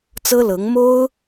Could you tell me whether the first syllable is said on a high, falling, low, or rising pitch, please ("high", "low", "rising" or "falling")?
high